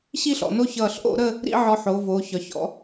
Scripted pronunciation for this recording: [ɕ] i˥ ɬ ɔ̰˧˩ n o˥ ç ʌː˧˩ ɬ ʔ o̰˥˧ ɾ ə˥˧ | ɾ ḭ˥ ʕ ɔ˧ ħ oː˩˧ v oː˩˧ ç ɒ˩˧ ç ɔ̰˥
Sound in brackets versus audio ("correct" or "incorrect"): correct